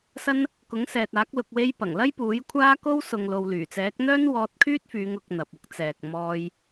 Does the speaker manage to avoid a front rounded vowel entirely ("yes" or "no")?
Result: no